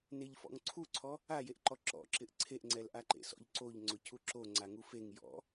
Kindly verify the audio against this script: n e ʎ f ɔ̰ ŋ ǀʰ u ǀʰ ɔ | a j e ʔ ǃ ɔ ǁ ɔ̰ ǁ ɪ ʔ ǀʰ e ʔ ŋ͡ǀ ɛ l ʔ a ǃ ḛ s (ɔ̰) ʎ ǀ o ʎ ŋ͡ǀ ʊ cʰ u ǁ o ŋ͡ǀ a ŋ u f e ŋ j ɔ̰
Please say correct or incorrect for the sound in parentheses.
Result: correct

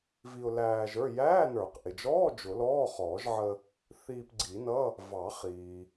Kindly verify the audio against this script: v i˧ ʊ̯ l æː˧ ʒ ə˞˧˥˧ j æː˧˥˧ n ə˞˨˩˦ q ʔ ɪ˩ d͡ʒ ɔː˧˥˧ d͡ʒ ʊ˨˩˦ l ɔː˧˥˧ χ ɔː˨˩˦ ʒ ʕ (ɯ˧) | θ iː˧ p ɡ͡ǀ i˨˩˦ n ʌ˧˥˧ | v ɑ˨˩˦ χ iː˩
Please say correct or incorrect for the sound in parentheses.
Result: incorrect: ə˧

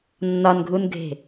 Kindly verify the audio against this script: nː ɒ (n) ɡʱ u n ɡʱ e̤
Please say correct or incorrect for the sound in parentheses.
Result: correct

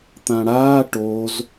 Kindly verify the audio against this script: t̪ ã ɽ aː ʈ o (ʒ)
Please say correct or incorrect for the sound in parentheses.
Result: incorrect: z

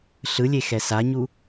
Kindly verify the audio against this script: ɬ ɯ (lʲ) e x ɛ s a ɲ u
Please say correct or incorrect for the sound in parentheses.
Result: correct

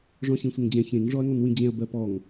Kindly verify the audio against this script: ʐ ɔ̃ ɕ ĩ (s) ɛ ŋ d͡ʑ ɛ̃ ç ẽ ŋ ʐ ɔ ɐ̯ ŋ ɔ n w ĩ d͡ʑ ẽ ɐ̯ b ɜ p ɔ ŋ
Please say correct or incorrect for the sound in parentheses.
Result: incorrect: sʷ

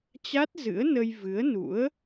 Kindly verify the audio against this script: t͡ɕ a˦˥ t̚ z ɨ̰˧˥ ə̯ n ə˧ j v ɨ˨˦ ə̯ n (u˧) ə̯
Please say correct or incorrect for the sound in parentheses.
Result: incorrect: ṵ˧˥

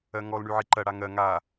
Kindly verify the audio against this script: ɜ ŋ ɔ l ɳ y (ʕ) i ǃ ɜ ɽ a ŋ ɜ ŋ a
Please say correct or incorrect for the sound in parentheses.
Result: correct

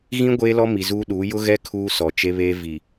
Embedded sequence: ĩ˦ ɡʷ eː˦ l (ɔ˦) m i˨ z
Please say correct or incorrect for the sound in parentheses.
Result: correct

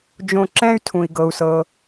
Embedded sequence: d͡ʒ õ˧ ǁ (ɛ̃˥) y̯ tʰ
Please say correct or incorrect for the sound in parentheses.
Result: correct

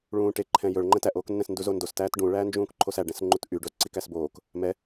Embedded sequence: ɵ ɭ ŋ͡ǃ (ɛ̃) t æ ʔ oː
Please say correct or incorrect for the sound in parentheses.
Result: correct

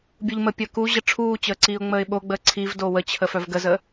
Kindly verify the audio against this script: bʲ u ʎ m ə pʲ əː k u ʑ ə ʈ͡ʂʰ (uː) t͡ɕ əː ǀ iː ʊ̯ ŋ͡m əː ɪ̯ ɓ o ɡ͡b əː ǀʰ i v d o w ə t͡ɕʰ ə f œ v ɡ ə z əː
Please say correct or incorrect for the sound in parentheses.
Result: correct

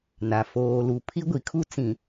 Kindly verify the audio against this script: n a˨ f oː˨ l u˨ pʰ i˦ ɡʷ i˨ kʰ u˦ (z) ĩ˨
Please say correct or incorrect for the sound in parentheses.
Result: incorrect: t͡s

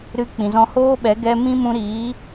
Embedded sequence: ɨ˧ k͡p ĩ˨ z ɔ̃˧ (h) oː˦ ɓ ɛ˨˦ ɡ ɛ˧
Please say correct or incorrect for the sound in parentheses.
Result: correct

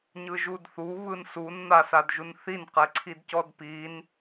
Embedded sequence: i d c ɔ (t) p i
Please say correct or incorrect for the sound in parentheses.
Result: incorrect: d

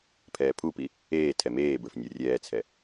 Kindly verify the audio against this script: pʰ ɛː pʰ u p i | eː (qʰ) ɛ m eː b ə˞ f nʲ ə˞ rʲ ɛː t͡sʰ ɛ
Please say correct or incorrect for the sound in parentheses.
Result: incorrect: tʰ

